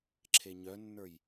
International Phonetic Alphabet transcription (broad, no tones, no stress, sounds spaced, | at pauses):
ǁʰ e ɲ œ nː ə˞ j